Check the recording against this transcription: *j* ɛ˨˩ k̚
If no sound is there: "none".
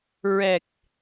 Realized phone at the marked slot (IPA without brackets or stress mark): ɹ